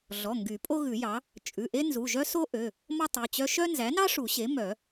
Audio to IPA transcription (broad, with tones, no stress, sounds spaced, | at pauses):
ɮ ɔ˩˧˩ ŋ ɡ y˨˩˦ pʼ o˥ ɣ ʉ˨˩˦ j ɑ˩˥ | t͡ʃʼ ʉ˩˧˩ ʔ e˥ n z u˩˧˩ ʒ œ˥ s o˥ ʔ ø˩˧˩ | m ɔ˥ tˤ ʉ˩˧˩ t͡ɕ œ˥ ʃ œ˥ n z æ˩˥ n ɑ˥ ʂ u˨˩˦ ɕ e˩˥ m œ˨˩˦